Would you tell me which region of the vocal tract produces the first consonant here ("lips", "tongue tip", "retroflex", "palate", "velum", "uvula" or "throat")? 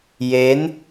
palate